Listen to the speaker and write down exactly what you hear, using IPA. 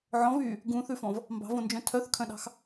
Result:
ʕ ɔ̃ v yː | ɡ ũ θ ʉ f ɔ̃ v | m b ɑ̤ v õ n d͡ʒ œ̃ tʰ œ θ kʰ œ̃ ɗ ɑ̤ x

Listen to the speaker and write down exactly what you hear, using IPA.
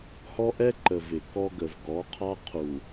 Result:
h ɔ˦ ʔ ɛ˦ ǃ ə˨ v ɪ˨ k ɔ˦ ɡ ə˨ v ɡ ɔ˨˦ qʰ ɑ˦ qʰ u˨

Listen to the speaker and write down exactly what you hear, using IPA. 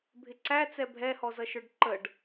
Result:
bʱ ɪ ǀ æ t͡s ɛ bʱ ɛ h ɔ z ʌ ʃ ə˞ ɖ ǃ ə ɖ

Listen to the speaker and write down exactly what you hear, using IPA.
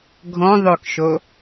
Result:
ɡʱ ɔ̃ ðˤ ɵ k ʃ o

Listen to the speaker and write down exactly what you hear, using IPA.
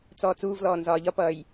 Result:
t͡s ɔː t͡s uː v l ɔː n z ɒː ʎ ɒ p ʌː j

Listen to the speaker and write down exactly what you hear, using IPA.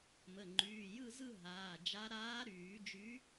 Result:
m ə˩˧˩ ŋ͡ǃ yː˩˧˩ j ɯ˥˧ z ɯ˥˧ ɦ aː˩˧˩ d͡ʒ a˧˥ ɾ aː˧˥ ɾ yː˨˩˦ d͡ʒ y˧˥

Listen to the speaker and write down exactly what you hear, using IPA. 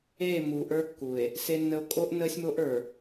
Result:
e˦˨ m u˨ ʔ ə˞˦ kː u˨ e̯ | s e˦ nː ə˦ o̯ kʼ o˦ ʔ n əː˦ sʲ m o˦ ʔ ə˞˨

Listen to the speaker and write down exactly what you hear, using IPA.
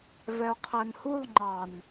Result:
v ɛ o̯ qʰ æ n h u lˠ ŋ͡ǃ ɑ n

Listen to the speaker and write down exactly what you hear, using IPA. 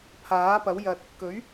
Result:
pʰ aː˨˥ p ɐ˨˥ w j ɐ˧ t̚ | k ɵ˨˥ ɥ

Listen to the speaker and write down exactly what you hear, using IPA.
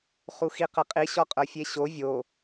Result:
χ u x i q ə qʼ i ɕ ɔ qʼ ə˞ fʲ e ɕ o vʲ o

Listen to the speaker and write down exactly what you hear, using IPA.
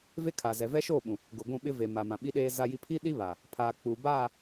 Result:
v e˦ kʰ a˨ z ɛ˨ v ɛ˦ ʃ oː˦˨ ɓ ũ˨ | ɡ ʊ˨ ɡʷ ũ˦˨ ɓ ɪ˦ v e˨ m a˨ m ã˨ ɓ i˦ ɗ eː˦ z a˦ j i˦ pʰ i˦ ɗ i˦ β a˨ | pʰ aː˨ k͡p u˨ b aː˦˨

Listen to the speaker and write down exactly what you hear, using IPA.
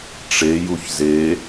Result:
ʈ͡ʂ e j u ç z e

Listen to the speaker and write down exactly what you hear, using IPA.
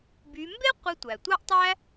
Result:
b y˧˥ m b e˥ qʷ i˧ tʷ æ˩ tʷ ɑ˥ ʔ tˤ æ˥

